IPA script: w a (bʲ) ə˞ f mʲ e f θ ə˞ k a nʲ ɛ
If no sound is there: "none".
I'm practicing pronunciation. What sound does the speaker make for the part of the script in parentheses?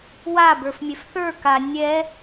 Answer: b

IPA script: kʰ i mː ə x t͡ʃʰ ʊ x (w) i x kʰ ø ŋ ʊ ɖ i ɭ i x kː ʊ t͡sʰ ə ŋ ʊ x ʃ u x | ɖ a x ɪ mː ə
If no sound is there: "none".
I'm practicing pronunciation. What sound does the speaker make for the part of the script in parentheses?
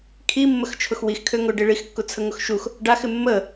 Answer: w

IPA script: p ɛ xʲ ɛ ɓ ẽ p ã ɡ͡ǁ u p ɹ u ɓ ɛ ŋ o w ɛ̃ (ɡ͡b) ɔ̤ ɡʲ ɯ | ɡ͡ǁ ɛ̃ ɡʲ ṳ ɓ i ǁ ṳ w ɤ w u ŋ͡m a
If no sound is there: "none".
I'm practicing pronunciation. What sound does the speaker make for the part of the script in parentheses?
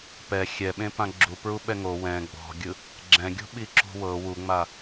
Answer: ɡ͡b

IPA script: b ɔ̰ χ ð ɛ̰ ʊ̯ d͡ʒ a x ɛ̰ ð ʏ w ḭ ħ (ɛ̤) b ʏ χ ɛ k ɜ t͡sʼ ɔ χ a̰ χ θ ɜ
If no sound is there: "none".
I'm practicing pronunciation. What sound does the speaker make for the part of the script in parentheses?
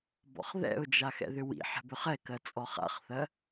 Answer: ɛ̤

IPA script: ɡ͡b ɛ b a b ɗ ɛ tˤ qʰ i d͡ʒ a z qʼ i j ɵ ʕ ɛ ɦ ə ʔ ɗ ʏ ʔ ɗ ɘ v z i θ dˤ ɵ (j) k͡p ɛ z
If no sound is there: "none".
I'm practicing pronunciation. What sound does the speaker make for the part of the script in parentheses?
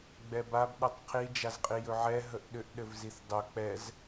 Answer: none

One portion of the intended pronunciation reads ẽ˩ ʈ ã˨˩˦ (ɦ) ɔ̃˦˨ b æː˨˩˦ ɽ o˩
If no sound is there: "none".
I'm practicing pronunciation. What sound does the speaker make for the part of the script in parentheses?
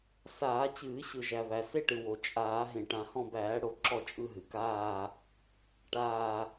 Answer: h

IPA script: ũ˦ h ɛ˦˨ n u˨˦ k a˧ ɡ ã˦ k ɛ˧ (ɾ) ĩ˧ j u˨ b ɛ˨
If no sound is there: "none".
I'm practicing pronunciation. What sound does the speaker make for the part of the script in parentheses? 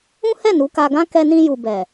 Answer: n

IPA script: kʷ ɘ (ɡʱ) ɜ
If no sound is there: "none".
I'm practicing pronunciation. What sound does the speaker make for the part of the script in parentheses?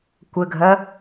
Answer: ɡʱ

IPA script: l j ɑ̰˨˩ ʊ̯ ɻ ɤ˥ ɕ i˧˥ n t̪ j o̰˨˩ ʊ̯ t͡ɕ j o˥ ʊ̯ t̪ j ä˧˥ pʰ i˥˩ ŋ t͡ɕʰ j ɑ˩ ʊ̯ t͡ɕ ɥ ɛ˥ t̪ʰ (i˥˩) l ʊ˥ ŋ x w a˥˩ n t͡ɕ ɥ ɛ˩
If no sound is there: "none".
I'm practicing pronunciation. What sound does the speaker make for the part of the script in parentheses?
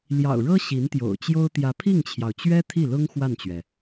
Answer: i˥˩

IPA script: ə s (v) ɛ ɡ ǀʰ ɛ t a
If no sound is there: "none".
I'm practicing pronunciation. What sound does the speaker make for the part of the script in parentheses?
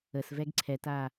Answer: v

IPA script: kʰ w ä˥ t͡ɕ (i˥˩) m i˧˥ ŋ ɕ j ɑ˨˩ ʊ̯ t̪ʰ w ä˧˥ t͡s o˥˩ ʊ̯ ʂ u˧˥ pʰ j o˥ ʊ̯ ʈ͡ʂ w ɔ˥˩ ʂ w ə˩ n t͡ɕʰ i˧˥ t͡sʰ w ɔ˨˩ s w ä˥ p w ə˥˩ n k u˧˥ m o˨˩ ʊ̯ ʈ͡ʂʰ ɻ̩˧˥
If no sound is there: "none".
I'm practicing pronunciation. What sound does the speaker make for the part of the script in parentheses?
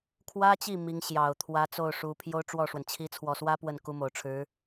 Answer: i˥˩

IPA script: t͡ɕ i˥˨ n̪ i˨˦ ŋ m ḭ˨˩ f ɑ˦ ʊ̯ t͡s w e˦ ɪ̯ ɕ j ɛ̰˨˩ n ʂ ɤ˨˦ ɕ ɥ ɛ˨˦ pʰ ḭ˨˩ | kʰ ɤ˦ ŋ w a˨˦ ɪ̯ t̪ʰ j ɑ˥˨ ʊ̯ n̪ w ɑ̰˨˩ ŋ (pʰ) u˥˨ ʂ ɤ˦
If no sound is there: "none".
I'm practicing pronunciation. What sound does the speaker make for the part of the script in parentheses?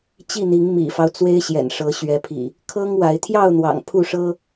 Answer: pʰ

